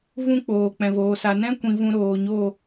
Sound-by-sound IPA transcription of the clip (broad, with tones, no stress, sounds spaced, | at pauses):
v ũ˦ k͡p oː˨ k͡p ɛ̃˨ v oː˨ s a˨ n ɛ̃˦ kʷ ĩ˨ v ũ˧ ɾ oː˨ ɲ o˦˨